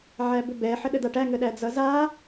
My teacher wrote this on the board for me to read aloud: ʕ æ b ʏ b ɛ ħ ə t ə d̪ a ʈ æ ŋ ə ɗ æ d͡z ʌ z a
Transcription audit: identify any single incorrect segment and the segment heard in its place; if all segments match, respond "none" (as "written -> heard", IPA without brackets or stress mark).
t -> ɗ